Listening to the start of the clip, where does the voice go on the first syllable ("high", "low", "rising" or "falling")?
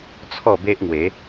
falling